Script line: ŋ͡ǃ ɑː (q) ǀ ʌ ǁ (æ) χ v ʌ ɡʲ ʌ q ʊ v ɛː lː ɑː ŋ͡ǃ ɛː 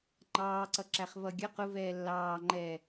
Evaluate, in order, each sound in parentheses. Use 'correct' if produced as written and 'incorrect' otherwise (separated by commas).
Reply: incorrect, correct